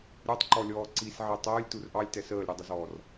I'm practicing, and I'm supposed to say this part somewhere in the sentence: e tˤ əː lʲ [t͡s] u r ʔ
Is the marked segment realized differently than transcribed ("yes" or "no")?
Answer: yes